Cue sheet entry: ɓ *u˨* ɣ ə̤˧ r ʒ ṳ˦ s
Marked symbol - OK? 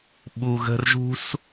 yes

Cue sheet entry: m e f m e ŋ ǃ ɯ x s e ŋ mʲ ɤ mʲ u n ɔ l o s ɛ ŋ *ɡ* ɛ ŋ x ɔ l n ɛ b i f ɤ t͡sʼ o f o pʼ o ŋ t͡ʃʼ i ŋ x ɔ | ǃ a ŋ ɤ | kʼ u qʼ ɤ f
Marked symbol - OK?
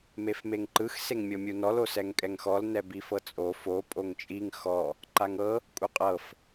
no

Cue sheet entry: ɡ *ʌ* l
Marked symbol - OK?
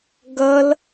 yes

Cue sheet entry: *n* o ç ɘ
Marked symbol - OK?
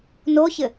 yes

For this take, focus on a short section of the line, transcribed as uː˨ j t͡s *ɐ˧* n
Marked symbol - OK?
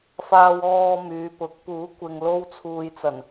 no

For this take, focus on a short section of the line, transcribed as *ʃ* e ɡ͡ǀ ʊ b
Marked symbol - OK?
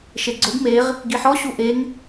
yes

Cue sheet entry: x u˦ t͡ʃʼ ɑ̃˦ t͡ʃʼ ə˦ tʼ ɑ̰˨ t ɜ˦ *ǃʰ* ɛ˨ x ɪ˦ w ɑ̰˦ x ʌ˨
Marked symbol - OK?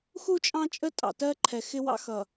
yes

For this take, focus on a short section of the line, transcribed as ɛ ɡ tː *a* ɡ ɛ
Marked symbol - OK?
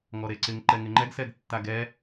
yes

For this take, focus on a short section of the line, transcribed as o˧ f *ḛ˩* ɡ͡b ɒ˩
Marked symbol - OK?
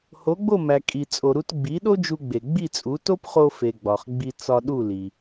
no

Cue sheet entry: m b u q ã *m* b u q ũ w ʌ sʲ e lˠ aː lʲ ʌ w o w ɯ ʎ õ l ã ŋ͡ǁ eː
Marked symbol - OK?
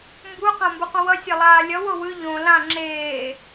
yes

